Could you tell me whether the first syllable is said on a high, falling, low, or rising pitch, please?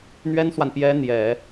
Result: high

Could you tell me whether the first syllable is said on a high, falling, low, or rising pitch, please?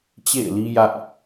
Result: falling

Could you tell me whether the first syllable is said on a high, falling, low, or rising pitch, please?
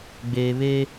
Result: low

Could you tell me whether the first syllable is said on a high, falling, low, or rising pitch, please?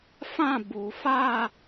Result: falling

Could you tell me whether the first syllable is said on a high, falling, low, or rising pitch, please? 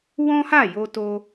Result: high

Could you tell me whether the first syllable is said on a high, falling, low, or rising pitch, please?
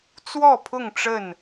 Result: falling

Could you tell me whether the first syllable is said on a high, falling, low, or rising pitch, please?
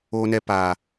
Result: high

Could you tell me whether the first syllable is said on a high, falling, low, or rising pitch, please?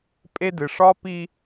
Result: high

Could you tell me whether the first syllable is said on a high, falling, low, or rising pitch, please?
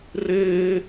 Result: high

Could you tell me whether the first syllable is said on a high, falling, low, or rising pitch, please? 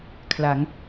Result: rising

